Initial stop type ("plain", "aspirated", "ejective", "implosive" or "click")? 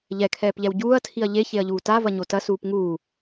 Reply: aspirated